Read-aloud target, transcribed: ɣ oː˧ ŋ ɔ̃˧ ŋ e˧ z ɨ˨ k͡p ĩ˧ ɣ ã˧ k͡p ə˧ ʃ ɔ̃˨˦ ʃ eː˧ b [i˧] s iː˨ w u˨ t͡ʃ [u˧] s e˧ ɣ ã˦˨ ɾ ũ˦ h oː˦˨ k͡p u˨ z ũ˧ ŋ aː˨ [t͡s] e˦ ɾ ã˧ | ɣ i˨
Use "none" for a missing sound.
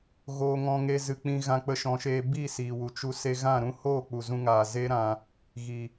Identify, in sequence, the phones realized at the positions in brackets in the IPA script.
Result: i˦˨, u˧, z

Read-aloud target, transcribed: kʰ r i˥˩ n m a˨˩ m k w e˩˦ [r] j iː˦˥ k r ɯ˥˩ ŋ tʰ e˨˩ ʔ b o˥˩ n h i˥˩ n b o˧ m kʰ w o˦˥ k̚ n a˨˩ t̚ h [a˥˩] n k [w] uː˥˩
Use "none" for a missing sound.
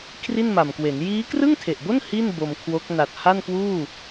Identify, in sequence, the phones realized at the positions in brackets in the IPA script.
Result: n, a˥˩, w

